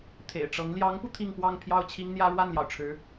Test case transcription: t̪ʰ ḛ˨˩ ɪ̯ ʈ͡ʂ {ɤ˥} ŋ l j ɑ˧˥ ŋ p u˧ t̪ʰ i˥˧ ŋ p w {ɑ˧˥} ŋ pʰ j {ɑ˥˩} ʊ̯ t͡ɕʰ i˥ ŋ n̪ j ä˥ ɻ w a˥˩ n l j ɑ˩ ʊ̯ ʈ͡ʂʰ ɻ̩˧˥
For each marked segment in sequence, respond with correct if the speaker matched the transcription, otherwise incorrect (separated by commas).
incorrect, incorrect, correct